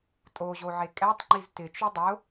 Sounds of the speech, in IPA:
tʼ o ʑ o ʕ e kʼ ɛ tˤ ŋ͡ǃ i z t ɪ t͡ʃ u dˤ ʊ

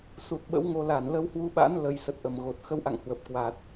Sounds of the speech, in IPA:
s u˨˩ t̚ ɓ ə̰˧˥ w ŋ o˧ l a˧˩ n l ə˧ w h w u˧ ɓ a̰˧˥ n l ə˨˩ j s ə˨˩ t̚ ʔ ə˧˩ m ɣ o˨˩ t̚ x ə˧ w ʔ a̰˧˨ ŋ h w ə˨˩ p̚ k w aː˨˩ t̚

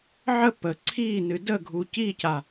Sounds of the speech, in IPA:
ʕ ə p ə ǀʰ i n ɨ d ə ɡʱ u c i c a

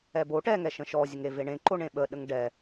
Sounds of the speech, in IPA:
ɛ b o ʈ ɛ ŋ ɛ ʃ ə̃ ʃ ɔ zʲ ə ŋ e v e ɳ ẽ ǃ o ɳ ẽ ɓ ə ɗ ə ŋ ɖ ɛ

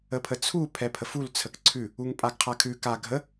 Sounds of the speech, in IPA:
ə pʰ ə t͡sʰ u pʰ ɛ pʰ ə f u l t͡sʰ ə k ǀʰ ʉ | u ŋ pʼ a ɡ qʰ a kʰ ʉ k a ɡʱ ə

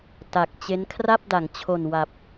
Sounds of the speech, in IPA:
t a˨˩ k̚ t͡ɕ e˦˥ n kʰ r a˥˩ p̚ d a˩˦ ŋ t͡ɕʰ o˨˩ n w a˨˩ p̚

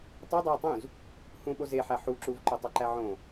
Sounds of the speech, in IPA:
tˤ o dˤ æ ɐ̯ tˤ ũ z | h ũ ɓ o z e ħ æ ħ u ǁ u v ǃ o tˤ o ǃ æ ʕ õ

